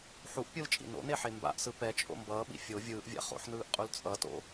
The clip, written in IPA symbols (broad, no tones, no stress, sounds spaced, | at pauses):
ħ u ʔ pʲ ɯ l t͡ʃʼ ḭ n o̰ n e ħ e m b a̰ ʔ s ɯ p ɛ t͡ʃʼ o̰ m b ʌː ɓ ḭ fʲ o vʲ ɯː ʔ vʲ a̰ χ o̰ ħ n ɯː ʔ qʼ u l t͡sʼ ʌ t o̰